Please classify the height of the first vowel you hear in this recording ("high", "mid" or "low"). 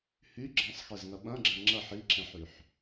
high